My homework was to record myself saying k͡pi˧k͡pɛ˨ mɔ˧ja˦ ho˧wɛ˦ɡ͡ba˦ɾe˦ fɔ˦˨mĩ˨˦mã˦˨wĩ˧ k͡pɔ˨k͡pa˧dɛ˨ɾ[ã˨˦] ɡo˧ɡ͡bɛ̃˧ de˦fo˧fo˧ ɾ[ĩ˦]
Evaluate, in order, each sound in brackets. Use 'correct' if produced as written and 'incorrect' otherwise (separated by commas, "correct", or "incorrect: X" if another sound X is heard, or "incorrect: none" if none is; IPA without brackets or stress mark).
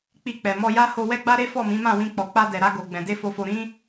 incorrect: a˨˦, correct